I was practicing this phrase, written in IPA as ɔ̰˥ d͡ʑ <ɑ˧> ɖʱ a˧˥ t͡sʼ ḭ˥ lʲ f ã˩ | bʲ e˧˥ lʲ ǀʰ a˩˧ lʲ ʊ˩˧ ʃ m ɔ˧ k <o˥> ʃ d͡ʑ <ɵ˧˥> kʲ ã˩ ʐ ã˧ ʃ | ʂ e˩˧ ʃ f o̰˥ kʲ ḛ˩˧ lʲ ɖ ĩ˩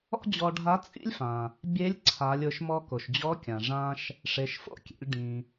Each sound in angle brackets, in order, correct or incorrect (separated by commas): incorrect, incorrect, incorrect